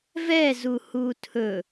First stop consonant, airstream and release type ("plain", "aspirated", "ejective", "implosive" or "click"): aspirated